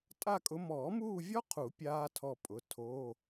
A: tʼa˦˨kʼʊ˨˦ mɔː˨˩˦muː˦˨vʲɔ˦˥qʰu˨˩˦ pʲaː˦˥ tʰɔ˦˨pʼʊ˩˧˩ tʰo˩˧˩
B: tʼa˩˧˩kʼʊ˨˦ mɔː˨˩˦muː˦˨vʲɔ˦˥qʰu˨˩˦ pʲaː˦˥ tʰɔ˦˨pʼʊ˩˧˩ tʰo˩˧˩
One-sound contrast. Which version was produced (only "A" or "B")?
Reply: A